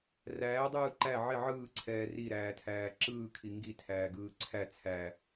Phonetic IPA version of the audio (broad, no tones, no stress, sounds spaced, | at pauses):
r æː dˤ ɯː ǃ æ ʕ ɪ ʕ ɯː ǀʰ ɛː r i ɾ æː tʰ æː ǁ ɯː kʰ i ŋ ɡ i tʰ æː ɡ ɯː ǀʰ æ t͡sʰ æ